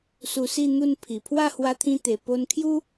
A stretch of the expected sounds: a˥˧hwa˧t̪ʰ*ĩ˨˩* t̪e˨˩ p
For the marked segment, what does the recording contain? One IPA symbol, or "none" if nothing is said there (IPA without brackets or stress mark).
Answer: ĩ˧